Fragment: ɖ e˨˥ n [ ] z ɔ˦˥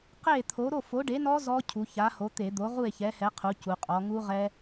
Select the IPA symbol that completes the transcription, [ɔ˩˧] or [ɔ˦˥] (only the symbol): ɔ˦˥